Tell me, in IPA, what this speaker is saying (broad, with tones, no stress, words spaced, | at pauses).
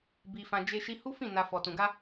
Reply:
bi˧fã˧ d͡ʒe˦ʃi˦ hu˦fĩ˦˨ na˧ fɔ˨tũ˨ɡa˧